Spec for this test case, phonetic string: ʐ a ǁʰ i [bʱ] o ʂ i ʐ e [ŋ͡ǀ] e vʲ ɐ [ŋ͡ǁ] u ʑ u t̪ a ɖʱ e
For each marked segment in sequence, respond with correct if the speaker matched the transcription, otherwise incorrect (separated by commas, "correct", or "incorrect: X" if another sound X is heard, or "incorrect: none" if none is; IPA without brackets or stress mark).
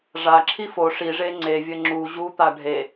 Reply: incorrect: f, correct, correct